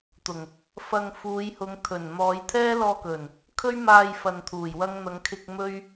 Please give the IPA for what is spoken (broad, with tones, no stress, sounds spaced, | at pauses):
t̪ ʊ˨˩ ŋ | f ɐ˧ ŋ f uː˨˧ j h ʊ˨˧ ŋ t̪ʰ ɵ˨˩ n n̪ ɔː˨˧ j t̪ʰ ɛː˥ l ɔː˧ k ɵ˨˩ n | kʰ ɵ˥ ɥ m aː˧ j f ɐ˨ n t̪ʰ uː˨˩ j w ɐ˥ ŋ n̪ ɐ˨˧ ŋ kʰ ɪ˧ k̚ m ɵ˥ ɥ